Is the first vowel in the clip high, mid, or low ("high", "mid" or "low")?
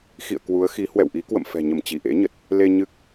high